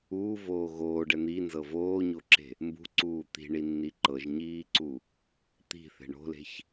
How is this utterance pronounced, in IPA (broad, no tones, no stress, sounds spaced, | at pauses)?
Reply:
uː v oː ɣ oː ɖ ɛ n̪ i n z ɤ v oː ɲ o ǁ e̤ | m b ṳ ǀ uː t̪ i̤ ɳ i nː i ǃ ɤ ʒ ɲ iː ǀ u | t̪ i̤ θ e̤ ɳ o̤ l e̤ ç